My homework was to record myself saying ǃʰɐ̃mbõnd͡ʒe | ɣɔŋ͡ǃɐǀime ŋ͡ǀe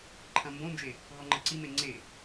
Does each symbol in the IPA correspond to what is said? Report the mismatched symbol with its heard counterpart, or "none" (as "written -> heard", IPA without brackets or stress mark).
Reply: none